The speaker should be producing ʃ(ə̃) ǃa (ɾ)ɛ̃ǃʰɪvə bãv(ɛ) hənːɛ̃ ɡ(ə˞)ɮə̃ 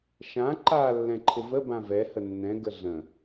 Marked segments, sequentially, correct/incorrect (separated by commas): incorrect, incorrect, correct, incorrect